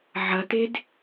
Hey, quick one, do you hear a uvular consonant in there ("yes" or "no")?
no